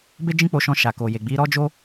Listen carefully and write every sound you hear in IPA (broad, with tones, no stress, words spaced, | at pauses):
be˦d͡ʒĩ˦k͡po˧ʃɔ̃˧ ʃa˨ko˨je˨ ɡ͡bi˨˦ɾɔ˦d͡ʒo˦